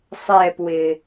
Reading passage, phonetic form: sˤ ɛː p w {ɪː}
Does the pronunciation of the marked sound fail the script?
no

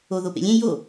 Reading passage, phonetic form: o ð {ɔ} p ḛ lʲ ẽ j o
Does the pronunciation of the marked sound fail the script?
yes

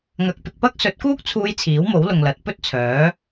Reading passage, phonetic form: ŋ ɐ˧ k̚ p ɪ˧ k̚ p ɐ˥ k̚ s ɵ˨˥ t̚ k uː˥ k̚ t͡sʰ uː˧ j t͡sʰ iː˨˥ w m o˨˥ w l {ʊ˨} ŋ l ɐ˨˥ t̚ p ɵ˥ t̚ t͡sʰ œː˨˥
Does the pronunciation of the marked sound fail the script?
no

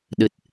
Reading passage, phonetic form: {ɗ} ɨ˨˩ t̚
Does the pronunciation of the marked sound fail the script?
no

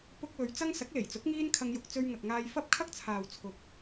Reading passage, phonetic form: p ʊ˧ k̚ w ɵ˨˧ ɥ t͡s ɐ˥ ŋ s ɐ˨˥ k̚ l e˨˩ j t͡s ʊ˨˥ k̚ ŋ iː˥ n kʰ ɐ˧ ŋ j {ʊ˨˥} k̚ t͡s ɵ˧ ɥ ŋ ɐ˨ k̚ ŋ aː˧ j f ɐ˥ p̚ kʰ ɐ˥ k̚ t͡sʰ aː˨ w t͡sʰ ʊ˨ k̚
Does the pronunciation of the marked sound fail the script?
yes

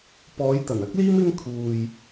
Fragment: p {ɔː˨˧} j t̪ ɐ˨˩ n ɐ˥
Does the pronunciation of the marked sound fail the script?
no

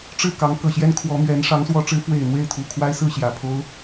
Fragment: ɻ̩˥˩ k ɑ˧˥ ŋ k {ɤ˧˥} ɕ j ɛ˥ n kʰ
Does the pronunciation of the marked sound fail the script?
yes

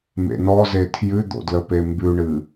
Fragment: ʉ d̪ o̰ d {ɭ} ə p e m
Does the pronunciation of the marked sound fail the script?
yes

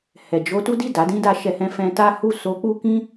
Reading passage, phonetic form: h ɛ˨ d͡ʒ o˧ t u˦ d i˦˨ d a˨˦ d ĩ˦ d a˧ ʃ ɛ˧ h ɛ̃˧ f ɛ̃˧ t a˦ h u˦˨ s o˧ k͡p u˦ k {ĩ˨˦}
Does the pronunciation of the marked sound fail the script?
yes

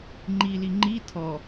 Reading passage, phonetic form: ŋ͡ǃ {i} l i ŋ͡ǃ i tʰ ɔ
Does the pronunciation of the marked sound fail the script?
no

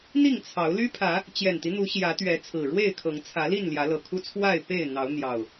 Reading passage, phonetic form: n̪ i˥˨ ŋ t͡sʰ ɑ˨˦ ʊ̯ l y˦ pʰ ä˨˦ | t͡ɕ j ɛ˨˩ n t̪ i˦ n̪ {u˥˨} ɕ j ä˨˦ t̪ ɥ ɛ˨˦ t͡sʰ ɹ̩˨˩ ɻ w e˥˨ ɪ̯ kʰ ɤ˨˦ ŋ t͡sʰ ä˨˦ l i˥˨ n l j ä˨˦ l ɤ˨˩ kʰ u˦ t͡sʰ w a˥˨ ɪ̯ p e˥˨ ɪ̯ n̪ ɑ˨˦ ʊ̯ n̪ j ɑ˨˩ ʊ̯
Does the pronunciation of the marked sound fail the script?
yes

